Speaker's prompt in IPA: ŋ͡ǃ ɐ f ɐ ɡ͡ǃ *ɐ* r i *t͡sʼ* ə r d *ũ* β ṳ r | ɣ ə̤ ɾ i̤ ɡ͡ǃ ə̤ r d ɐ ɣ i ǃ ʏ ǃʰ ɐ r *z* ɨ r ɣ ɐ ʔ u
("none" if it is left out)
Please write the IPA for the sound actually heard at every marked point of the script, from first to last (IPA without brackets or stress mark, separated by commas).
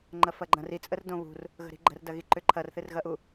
ɐ̃, t͡sʼ, õ, θ